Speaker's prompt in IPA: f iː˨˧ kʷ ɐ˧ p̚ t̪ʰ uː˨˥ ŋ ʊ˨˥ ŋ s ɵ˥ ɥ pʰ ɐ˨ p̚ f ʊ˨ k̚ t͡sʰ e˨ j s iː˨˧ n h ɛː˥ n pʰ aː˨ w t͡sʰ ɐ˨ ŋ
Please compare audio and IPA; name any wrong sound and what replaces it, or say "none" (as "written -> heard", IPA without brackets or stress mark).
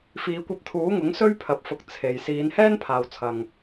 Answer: none